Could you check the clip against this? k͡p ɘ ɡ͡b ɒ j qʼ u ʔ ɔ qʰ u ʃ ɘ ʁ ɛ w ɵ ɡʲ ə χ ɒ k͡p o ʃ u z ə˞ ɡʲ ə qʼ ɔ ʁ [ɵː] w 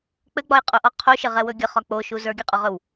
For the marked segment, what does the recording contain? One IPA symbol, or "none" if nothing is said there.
ɵ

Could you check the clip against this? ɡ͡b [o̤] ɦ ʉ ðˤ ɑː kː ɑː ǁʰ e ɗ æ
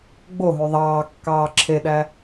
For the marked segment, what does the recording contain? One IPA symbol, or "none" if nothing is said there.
o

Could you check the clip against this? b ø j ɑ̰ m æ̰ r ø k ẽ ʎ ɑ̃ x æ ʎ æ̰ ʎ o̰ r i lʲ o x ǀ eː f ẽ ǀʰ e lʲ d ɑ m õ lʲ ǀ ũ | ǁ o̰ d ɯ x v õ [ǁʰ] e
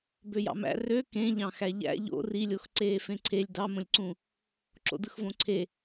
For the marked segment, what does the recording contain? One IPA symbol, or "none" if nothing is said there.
ǀʰ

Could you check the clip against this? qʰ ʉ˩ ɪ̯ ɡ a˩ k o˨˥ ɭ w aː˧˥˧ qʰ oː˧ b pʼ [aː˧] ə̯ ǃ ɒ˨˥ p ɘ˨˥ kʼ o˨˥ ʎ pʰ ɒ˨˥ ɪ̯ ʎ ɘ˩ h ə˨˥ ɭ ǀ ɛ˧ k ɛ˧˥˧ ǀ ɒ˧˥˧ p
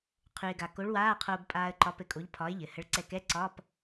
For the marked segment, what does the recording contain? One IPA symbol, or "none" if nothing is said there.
aː˧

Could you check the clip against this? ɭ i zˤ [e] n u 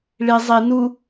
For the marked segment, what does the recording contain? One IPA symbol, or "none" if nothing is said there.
i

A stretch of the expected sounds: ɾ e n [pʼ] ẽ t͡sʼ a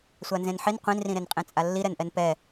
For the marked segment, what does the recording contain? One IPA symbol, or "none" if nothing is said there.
qʼ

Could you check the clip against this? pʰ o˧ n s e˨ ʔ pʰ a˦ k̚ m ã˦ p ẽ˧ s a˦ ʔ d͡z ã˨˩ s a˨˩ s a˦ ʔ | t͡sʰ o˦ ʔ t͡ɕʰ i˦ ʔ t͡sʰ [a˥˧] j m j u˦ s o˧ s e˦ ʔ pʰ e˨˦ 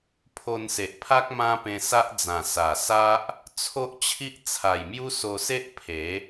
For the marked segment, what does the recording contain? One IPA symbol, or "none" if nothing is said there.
a˨˩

